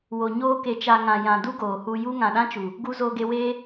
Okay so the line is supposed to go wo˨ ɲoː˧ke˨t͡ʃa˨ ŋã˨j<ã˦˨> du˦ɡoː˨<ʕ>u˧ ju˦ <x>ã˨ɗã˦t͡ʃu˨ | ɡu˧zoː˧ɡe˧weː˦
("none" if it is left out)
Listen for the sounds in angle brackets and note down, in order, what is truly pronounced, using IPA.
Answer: ã˨, h, ŋ

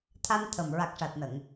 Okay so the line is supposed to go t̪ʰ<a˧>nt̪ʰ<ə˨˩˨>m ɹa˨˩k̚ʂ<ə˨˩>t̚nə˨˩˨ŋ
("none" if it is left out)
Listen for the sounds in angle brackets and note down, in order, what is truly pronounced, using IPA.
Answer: a˧, ə˨˩, a˨˩

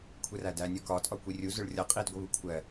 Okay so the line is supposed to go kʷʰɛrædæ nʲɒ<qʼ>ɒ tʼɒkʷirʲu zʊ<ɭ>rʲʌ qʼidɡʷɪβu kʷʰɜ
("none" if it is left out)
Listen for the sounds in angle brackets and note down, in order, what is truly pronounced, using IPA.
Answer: k, ɭ

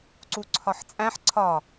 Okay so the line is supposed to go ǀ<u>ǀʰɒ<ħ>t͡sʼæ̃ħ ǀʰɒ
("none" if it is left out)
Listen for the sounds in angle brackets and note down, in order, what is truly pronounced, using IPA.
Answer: u, ħ

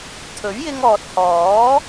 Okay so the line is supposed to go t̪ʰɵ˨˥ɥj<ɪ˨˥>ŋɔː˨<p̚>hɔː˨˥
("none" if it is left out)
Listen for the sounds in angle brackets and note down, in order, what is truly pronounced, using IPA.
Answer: ɪ˧, t̚

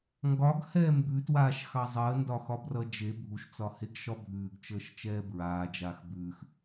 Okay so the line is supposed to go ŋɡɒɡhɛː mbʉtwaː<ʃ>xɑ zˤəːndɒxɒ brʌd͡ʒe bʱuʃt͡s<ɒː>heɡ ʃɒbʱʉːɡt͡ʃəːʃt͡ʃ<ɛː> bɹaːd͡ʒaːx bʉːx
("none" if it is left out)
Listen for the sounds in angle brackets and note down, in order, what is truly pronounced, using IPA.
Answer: ʃ, ɒ, ɛː

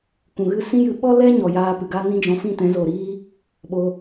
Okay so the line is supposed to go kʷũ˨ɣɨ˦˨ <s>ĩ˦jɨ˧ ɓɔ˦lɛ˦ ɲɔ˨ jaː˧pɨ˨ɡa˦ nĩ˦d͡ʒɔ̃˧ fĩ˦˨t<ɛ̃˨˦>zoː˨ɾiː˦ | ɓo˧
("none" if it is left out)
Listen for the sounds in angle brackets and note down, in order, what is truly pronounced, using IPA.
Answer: s, ɛ̃˨˦

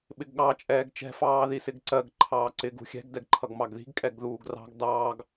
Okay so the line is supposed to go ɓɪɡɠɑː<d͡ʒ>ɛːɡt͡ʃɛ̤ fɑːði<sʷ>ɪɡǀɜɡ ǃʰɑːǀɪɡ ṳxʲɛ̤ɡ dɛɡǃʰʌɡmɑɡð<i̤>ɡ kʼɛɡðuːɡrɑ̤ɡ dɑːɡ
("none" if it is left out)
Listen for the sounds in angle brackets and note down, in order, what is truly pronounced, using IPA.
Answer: t͡ʃʼ, s, i̤

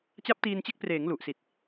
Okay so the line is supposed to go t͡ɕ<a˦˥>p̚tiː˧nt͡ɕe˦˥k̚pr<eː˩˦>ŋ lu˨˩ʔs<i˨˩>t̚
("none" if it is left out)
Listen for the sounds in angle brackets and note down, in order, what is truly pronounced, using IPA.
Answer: a˦˥, eː˩˦, i˨˩

